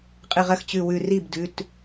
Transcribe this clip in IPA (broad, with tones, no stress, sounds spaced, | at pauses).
qʼ ɨ˧˩ ʁ ɐ˥˩ x t͡ɕ ʉ˧˩ w ʉ˧˩ r i˥˩ b d ʉ˩˧˩ t